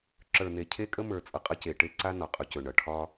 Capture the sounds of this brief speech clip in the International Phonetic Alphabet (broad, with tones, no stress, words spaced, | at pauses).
ǁə˞˨n̪e˨cʰe˦ kʼə˦ mə˞˨ t͡sʼʌ˨qʼʌ˦ce˨ʈe˦ ǀa˦nɒ˨qʼɵ˨cɵ˨ ɳʌ˨ ʈʰɒ˦